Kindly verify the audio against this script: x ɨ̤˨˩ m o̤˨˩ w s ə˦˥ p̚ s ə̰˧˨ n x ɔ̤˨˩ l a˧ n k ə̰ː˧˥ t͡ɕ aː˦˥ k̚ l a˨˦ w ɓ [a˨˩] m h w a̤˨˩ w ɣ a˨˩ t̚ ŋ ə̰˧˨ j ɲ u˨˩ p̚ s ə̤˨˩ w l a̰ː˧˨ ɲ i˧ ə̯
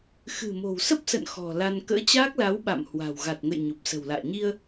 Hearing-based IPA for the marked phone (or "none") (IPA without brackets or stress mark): a̰˧˨